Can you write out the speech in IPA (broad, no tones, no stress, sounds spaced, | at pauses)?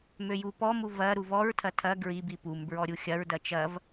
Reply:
m ø j u p ɔ m u v ɐ ɾ u v ɔ ɹ tʰ ɐ tʰ ɐ ɡ ɹ i b i p u m b ɹ ɔ ɾʲ u xʲ ɐ ɹ d ɐ t͡ʃ ɐ v